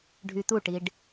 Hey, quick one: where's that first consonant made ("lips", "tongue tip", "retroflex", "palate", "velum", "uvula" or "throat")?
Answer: retroflex